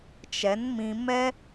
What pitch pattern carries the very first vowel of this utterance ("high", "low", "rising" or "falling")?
rising